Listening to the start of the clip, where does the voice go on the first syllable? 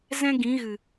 high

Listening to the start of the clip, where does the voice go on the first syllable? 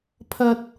high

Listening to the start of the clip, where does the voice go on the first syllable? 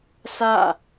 falling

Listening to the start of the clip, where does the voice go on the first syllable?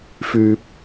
low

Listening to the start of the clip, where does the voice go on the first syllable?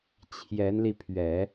rising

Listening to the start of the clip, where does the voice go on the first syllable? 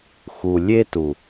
low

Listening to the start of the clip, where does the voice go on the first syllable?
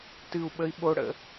high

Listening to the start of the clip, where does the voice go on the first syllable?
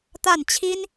falling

